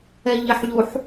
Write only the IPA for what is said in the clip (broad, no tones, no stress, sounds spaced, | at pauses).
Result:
ɛ ʎ ɪ ħ ʎ u ħ